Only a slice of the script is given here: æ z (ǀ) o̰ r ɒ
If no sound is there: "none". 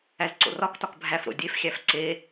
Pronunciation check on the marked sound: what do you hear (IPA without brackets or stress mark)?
ǀ